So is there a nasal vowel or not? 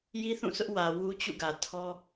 yes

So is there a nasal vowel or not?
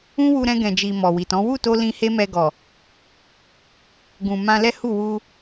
yes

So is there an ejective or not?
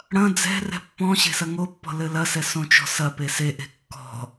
no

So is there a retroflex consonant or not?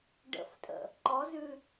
yes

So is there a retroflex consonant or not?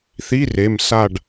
yes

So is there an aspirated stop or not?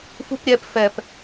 no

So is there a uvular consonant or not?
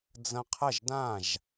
yes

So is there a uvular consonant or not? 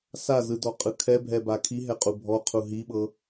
yes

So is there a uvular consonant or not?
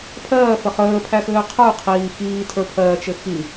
yes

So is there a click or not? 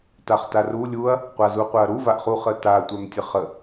no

